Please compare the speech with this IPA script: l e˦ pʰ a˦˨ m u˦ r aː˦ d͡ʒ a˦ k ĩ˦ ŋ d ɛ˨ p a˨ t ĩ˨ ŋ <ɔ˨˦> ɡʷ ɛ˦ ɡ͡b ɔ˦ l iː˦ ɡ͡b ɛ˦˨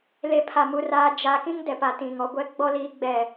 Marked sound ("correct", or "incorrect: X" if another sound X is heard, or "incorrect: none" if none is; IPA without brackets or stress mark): correct